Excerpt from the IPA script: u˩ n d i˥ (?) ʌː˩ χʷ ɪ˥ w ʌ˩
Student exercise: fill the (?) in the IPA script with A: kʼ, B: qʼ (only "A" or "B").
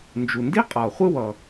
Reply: B